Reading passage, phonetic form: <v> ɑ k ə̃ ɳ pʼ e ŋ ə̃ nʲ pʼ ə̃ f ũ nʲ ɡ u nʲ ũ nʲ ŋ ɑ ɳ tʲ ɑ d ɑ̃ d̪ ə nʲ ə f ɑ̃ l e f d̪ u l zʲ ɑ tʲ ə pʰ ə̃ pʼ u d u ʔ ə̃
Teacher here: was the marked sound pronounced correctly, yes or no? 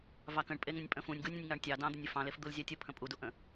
yes